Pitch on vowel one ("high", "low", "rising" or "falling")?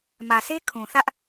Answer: low